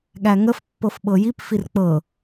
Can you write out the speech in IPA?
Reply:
ɠ æ ŋ ə f pː ɤ f ɓ ɤ j i p f i r k͡p ɤ

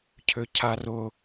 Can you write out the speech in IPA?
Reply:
cʰ ʏ cʰ a r ʊ

